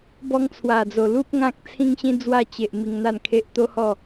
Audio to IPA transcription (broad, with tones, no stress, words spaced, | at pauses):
bɔ˧ŋt͡sʰwa˨˩d͡zo˨˩ lu˦p̚ ŋã˦k̚t͡sʰĩ˦ŋɕĩ˦ d͡zwa˧t͡ɕe˨ʔ mi˧ŋn̪a˥˧nkʰe˦ʔ t̪o˦hɔ˥˧